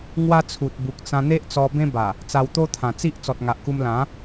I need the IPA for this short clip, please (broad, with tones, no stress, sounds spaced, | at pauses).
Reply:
ŋ w a˦ t͡sʰ u˨ t̚ b u˨ k̚ t͡s ã˧ n̪ e˦ ʔ t͡s ɔ˧ b ẽ˦ b a˨˩ | t͡s a˧ w t̪ o˦ t̪ʰ ã˨˩ t͡s i˦ ʔ t͡s ɔ˨ t̚ ŋ a˨ ʔ k u˧ m l ã˨˦